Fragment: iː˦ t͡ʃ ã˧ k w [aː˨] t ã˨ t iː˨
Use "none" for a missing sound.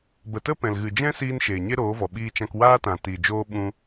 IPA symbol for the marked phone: aː˦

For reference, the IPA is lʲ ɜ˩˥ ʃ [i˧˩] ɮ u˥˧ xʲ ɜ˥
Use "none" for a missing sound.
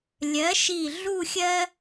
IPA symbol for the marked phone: i˧˩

